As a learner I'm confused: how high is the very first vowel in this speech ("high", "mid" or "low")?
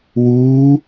high